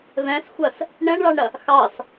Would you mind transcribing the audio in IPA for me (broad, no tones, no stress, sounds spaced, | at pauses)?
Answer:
v ɛ̃ s xʷ ɐ s | ɳ ɛ̃ ɳ ɭ ɑ ɳ ɾ ɐ | x ɑ s